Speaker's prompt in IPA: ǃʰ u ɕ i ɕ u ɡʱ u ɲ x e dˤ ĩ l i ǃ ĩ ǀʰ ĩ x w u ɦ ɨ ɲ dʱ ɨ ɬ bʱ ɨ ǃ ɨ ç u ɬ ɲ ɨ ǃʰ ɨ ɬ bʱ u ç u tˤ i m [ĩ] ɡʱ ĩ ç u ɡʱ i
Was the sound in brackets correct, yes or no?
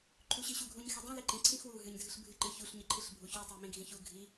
yes